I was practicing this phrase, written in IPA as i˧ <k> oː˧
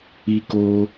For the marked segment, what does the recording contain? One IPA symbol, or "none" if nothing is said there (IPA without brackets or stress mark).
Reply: k